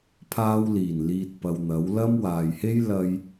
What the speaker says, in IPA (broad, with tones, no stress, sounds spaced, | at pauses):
pʰ aː˧ w l iː˨˩ n l iː˨ t̚ p ɐ˨ w n̪ ɐ˨˥ w l ɐ˥ m w aː˨ j h e˥ j l ɐ˧ j